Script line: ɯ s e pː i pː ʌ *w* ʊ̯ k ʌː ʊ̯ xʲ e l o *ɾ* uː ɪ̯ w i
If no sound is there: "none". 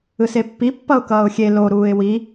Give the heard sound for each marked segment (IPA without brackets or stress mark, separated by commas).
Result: none, ɾ